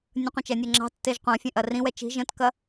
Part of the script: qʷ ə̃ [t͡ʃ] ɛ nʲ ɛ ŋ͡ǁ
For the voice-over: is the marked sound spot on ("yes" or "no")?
yes